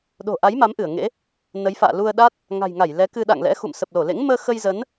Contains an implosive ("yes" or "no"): yes